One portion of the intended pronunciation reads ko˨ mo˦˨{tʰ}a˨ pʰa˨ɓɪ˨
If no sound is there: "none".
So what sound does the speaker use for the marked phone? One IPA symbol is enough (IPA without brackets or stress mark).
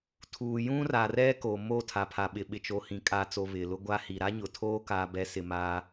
tʰ